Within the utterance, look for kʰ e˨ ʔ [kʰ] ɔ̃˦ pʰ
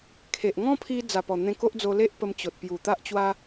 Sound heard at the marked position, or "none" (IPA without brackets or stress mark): ŋ